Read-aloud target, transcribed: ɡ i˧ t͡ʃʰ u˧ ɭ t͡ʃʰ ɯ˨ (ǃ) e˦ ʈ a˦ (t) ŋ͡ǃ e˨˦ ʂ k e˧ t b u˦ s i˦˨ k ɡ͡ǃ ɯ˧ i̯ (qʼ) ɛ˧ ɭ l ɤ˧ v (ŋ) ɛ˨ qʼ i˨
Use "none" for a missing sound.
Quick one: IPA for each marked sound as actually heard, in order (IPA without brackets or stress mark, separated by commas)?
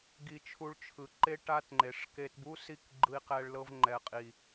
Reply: ǃ, t, q, ŋ͡ǃ